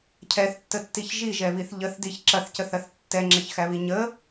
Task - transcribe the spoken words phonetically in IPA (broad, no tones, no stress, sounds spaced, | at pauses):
cʰ ɛ θ tː ə tː i ç ʒ i ʒ ɛ β i θ ʎ ə θ d i ç ǁ ɐ θ c ə θ ɐ θ tː ɛ ŋ͡ǁ ɐ ç x æ β i ɲ ə